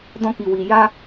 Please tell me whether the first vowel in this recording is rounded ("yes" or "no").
yes